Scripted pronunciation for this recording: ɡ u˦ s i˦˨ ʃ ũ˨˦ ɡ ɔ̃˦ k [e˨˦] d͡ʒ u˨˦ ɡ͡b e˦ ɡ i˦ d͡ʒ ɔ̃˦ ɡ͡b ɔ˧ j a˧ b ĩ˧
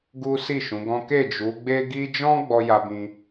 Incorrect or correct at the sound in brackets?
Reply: incorrect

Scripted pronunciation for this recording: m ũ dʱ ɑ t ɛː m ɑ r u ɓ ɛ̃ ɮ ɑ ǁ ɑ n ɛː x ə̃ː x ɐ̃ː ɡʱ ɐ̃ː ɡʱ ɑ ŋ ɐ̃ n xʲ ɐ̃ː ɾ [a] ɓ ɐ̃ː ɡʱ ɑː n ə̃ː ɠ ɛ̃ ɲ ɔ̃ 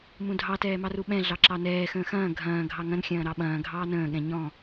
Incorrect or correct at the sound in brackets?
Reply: incorrect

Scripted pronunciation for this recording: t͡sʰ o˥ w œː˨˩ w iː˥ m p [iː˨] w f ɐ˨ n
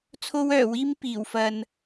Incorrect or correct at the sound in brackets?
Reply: incorrect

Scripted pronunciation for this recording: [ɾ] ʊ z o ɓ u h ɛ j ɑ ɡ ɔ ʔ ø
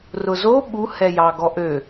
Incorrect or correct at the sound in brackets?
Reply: incorrect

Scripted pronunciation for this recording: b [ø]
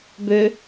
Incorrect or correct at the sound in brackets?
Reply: correct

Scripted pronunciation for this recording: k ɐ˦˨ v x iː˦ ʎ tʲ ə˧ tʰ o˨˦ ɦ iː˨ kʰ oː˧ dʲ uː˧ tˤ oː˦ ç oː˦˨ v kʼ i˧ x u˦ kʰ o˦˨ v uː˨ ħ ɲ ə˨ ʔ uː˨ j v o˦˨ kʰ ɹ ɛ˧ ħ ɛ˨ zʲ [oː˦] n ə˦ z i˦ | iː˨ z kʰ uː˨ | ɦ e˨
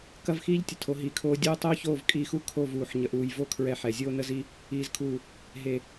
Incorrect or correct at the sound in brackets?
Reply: correct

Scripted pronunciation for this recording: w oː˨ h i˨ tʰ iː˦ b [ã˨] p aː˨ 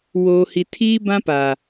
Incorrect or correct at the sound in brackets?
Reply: incorrect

